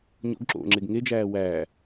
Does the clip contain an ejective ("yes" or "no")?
no